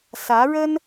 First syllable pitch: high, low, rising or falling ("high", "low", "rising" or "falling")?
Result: rising